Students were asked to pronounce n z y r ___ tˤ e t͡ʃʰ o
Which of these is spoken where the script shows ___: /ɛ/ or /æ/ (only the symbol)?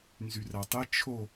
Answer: æ